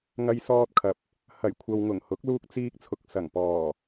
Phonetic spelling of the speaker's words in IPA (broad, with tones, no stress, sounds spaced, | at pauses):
ŋ ɐ˧ j s ɔː˧ t̚ kʰ ɐ˨ p̚ | h ɐ˨˩ j kʷʰ ɐ˨ w ŋ ʊ˨˩ ŋ h ʊ˨˥ k̚ l uː˧ k̚ t͡s iː˧ k̚ t͡sʰ ʊ˨ k̚ s ɐ˨˩ ŋ p ɔː˨˩